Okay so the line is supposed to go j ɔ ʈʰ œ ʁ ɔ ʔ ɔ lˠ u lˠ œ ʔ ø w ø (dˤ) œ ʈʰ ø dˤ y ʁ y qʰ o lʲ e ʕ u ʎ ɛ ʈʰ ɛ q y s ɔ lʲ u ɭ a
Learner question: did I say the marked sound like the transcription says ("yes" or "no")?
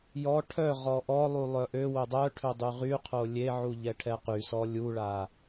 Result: yes